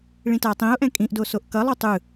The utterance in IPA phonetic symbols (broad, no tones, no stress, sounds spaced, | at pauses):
ɭ ĩ t a tˤ ĩ ʊ̯ ʔ ɛ̃ kʼ ĩ ʔ d o s o ʔ k ʌ lˠ u tˤ ɯ